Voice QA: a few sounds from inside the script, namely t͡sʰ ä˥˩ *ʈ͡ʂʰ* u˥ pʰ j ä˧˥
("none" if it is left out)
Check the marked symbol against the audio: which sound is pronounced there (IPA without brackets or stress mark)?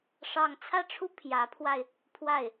ʈ͡ʂʰ